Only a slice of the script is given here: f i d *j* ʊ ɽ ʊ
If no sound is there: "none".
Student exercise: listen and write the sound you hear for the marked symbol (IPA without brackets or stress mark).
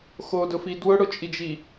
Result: w